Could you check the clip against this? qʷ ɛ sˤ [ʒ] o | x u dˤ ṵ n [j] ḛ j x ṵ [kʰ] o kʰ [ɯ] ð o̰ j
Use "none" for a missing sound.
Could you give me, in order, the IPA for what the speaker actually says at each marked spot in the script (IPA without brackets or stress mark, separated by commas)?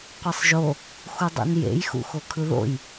ʒ, j, x, ɯ